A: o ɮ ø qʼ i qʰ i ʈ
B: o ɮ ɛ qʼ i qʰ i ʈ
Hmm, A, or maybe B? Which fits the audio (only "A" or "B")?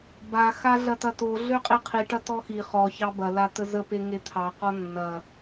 A